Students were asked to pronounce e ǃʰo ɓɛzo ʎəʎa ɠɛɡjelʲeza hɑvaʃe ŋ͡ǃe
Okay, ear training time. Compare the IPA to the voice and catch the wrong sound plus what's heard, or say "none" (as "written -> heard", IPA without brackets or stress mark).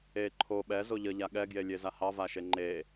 none